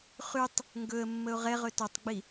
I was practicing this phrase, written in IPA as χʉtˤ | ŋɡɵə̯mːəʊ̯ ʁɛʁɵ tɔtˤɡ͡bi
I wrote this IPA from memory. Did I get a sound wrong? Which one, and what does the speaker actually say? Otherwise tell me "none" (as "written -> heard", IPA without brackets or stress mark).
none